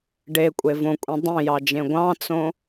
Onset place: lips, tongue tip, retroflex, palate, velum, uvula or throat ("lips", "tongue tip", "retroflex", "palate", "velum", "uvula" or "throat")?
retroflex